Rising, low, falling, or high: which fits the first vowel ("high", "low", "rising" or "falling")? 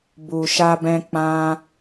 low